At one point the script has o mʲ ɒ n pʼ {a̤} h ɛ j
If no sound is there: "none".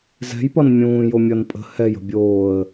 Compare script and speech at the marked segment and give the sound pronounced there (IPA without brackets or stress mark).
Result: ə̤